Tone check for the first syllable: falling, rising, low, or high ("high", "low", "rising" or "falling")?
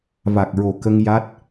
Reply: low